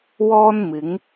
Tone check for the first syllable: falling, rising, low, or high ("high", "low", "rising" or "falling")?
high